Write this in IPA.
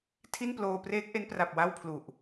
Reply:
tʰi˥˩nploː˧ preː˦˥k̚ʔe˦˥n pra˨˩p̚ wa˥˩wpʰlu˨˩ʔ

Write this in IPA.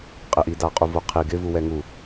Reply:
qʼɪʔidaqʼu voqʰi ɡɪ vuwɛŋu

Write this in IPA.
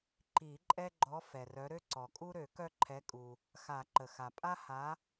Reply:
ǃi˨˩˦ǃʼɛ˦ɡ͡ǃɔ˨˦ fɛ˩rœ˨˦ ɾø˦ǀɔ˩kʼu˦ ɾø˨˩˦kœ˦ǃʰɛ˨˦kʼu˩ | xa˨˩˦ǃə˩xa˩ pʼa˦ha˨˦

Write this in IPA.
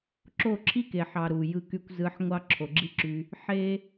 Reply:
ǁo˦˨ǁʰi˦ke˨ħɑ˨ ɾu˨ jɯ˧ky˧kʷzɯ˨˦ħ ŋʷɑ˦ ǁʰo˨ɡ͡ǁi˦ǁy˧ | ħe˦

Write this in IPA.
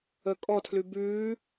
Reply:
ə kʼɔtʰlʉ bʉː

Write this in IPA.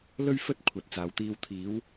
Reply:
lɵ˥ɥfɵ˥t̚ kʷʰɐ˨t̚t͡saː˨wt̪iː˧w t̪ʰiː˨˧w

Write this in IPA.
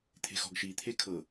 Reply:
t̪ʰe̤xɔ̤ɡʃi t̪ʰekʰɤ

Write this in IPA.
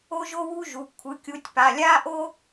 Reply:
o˥ʒo˥wu˥ʒu˩˧˩ kʷʰɯ˩˧˩kʲu˨˦tʲpa˩˧˩ lʲa˥ʔo˥

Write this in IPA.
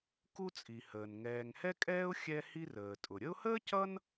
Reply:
ku˦t͡sʼi˩həː˩n ŋɛː˨ŋhɛ˥kʼɛː˥ʊ̯ xʲɛ˥hi˥rəː˩ tʼʊ˩ ɾʲə˦ʊ̯həː˥cʌ˦n

